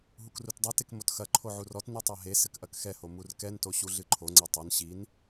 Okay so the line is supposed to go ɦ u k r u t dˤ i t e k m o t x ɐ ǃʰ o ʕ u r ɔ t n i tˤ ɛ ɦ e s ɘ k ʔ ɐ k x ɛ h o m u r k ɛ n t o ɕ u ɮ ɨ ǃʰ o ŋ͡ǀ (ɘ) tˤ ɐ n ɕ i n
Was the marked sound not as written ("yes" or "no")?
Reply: yes